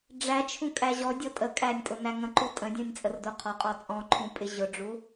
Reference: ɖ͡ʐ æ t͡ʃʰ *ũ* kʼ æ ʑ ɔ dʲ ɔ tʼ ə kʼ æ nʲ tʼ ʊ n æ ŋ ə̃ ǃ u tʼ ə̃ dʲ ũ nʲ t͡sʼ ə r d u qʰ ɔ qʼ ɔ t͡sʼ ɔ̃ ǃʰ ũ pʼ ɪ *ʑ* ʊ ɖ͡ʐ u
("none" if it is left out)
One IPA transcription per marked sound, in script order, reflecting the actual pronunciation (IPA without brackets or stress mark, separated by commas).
ũ, ʑ